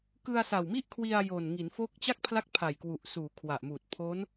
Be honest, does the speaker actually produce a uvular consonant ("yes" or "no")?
no